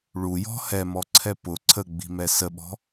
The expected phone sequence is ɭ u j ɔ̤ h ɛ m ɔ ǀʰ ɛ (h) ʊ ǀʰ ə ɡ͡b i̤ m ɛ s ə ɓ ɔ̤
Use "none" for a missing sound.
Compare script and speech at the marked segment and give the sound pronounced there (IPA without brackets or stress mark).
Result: p